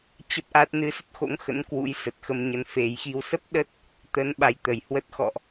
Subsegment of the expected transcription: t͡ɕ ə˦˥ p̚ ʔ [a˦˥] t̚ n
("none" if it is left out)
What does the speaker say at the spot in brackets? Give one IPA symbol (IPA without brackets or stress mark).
a˦˥